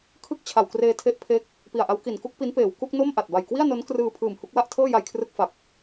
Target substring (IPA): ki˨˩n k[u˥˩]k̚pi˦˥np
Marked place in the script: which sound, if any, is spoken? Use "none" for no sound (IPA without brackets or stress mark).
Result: u˥˩